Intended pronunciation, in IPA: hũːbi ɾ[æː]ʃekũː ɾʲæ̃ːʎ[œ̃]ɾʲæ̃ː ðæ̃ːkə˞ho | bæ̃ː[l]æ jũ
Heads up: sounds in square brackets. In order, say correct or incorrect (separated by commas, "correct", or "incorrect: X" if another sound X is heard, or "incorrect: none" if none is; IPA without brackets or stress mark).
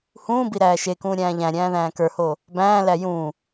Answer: correct, incorrect: æ̃, correct